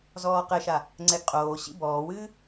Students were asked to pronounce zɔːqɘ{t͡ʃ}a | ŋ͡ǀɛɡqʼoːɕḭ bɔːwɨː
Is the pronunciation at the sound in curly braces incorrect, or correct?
incorrect